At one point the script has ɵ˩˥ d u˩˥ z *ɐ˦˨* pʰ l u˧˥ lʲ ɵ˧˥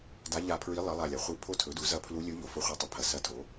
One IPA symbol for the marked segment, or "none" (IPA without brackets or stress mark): ɐ˦˨